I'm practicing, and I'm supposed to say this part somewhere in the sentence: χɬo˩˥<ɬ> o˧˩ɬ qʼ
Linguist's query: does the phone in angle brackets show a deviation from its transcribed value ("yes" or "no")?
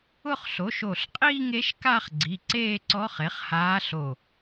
yes